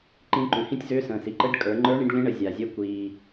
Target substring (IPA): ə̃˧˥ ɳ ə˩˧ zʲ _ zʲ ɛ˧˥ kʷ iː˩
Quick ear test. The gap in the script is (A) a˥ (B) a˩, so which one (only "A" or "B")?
B